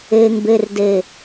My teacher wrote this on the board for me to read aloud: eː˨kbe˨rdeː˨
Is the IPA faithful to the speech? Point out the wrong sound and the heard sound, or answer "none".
k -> ŋ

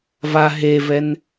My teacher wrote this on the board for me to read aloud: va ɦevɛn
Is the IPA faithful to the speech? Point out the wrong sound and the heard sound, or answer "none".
none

